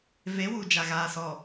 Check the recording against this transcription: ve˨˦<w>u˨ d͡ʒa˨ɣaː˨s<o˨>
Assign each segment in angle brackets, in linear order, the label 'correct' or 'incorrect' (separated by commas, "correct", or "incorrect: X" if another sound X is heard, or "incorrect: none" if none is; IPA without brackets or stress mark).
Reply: correct, incorrect: ɔ˨